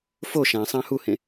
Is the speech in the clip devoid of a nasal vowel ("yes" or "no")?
no